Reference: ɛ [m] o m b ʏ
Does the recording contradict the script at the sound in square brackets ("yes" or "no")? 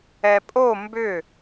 yes